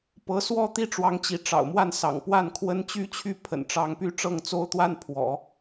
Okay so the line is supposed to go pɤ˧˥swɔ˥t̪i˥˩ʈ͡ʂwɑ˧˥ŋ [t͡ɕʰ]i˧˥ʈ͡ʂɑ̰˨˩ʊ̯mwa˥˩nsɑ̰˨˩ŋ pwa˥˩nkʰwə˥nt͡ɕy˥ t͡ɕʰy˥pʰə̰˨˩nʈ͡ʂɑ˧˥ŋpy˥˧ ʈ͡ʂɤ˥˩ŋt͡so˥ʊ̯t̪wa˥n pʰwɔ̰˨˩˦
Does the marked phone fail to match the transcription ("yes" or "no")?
yes